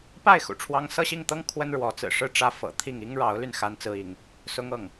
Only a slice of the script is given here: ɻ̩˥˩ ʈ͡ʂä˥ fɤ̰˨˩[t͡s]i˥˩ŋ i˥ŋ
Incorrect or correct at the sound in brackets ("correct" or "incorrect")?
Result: incorrect